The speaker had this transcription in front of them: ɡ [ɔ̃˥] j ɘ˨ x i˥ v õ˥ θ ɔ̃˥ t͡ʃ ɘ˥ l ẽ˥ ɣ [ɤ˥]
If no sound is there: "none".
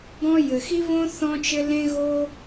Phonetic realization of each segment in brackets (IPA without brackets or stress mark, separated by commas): ɔ̃˥, o˥